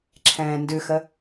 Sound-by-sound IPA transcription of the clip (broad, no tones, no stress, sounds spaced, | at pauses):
ǁʰ ɛ̃ː n d ʉ x ə